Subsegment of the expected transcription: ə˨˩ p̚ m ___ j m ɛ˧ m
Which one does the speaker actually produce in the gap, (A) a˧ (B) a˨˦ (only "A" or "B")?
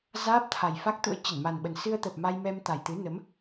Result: A